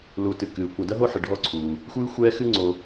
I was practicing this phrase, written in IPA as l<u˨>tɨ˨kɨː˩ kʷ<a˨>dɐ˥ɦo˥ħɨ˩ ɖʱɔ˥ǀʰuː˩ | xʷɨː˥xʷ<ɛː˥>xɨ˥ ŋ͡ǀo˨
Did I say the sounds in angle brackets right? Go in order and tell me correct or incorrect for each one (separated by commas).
correct, correct, correct